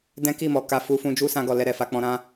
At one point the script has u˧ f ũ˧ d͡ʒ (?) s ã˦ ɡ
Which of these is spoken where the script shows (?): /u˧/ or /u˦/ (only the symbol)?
u˦